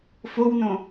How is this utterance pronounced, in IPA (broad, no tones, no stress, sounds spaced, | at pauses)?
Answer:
f o w n õ